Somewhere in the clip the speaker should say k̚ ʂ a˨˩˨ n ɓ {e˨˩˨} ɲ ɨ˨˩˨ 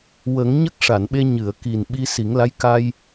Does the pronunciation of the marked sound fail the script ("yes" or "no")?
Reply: yes